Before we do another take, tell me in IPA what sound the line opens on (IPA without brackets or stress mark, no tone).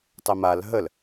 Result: tˤ